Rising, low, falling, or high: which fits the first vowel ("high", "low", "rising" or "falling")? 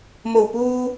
low